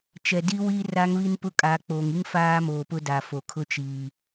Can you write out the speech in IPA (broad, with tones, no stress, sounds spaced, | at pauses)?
t͡ʃ ɛ˨ d i˦ w i˦ r a˦ ŋ β i˦ n p ʊ˦ kʼ aː˨ k͡p oː˨ ŋ i˦ ŋ f aː˦ m oː˨ p ʊ˦ d a˨ f o˨ kʰ ʊ˦ t͡ʃ iː˨